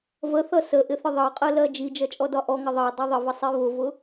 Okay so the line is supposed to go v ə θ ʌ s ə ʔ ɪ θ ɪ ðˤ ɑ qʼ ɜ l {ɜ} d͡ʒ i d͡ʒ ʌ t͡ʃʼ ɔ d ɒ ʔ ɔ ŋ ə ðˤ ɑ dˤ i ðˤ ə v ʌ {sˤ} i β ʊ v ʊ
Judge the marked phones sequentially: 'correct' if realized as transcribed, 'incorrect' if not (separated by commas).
correct, correct